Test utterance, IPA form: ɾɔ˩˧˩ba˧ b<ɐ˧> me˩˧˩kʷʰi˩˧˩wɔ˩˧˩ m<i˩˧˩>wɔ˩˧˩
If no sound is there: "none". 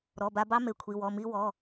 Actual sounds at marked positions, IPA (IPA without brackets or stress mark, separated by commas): ɑ˧, i˧